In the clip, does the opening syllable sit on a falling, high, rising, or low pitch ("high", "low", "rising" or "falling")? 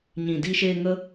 low